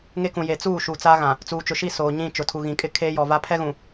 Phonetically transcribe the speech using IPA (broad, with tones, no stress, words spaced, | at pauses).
ŋe˦kũ˨ je˨t͡suː˦˨ ʃuː˨t͡sa˦ɣã˨ | t͡suː˨t͡ʃʊ˨ʃi˦˨ soː˨ɲĩ˦˨ t͡ʃʊ˨tʰu˨ɣĩ˨kʼɪ˦ kʰeː˦jɔ˨va˦ pʰɛ˦ɣũ˨